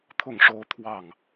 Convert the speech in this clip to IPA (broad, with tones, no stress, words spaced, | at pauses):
t̪ʰʊ˥˩ŋʂo˥ʊ̯ t̪ʰwɑ˥˩ŋ